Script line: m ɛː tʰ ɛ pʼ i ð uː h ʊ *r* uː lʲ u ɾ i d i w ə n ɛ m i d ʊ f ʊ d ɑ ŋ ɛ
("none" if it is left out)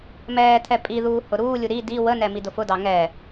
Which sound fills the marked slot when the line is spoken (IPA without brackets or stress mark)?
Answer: ɾ